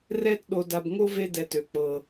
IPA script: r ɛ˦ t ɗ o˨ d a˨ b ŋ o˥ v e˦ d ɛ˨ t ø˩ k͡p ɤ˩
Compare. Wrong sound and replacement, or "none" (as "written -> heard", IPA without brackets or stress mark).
none